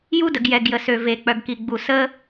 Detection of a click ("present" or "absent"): absent